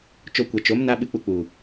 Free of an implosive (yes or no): no